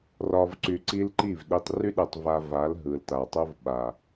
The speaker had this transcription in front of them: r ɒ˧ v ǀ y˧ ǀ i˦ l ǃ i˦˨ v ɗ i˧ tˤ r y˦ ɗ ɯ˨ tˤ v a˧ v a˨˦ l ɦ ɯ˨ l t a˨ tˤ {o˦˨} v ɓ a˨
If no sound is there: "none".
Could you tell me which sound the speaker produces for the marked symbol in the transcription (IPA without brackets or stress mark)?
o˦